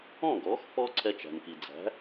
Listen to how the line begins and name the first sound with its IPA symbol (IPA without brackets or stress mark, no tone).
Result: ɔ̃